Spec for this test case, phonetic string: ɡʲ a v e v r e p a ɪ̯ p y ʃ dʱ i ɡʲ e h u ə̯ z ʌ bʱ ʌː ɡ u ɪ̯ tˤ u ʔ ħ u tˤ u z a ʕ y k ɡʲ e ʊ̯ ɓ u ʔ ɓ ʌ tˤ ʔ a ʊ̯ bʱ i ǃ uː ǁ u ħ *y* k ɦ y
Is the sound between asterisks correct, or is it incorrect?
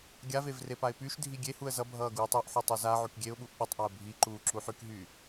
correct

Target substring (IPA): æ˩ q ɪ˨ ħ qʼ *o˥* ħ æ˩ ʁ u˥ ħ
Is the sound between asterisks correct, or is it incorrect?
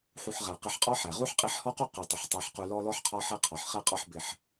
incorrect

